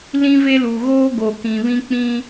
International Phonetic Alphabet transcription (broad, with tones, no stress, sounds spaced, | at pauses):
l ĩ˦ v e˦ l u˨ ɣ oː˦ ɡ o˨ k ĩ˨ β ĩ˦ k͡p ĩ˦